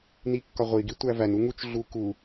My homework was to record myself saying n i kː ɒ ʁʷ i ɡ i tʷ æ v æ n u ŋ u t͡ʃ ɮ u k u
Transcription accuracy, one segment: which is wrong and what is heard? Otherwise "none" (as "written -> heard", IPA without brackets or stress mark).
none